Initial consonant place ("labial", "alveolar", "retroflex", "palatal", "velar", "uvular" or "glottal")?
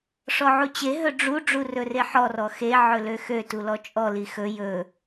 retroflex